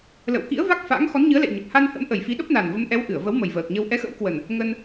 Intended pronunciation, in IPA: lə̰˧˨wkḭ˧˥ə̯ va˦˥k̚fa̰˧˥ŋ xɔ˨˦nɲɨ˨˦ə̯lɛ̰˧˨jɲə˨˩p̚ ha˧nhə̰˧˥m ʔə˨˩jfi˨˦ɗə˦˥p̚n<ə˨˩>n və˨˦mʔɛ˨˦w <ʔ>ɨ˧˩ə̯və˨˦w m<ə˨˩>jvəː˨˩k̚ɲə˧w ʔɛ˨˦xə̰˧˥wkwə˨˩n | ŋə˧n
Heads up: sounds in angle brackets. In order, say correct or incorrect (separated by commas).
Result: incorrect, correct, correct